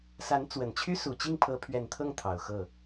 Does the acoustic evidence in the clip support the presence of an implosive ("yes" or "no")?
no